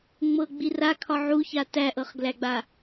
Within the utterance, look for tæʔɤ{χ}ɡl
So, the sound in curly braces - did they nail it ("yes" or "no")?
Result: yes